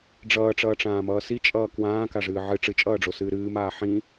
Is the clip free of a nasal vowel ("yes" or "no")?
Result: no